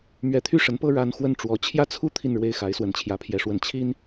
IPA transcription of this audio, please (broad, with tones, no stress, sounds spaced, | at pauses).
m ɥ ɛ˧˥ t̪ʰ y˥˩ ʂ ə˧˥ n p ɤ˥ ɻ a˧˥ n x w ə˥˩ n ʈ͡ʂ w ɔ˧˥ t͡ɕʰ j ä˥ t͡sʰ u˥ t̪ʰ i˥˧ n ɻ w e˥˩ ɪ̯ x a˧˥ ɪ̯ s w ə˧˥ n t͡ɕʰ j ä˧˥ pʰ j ɛ˧˥ ʂ w ə˧˥ n t͡ɕʰ i˥ n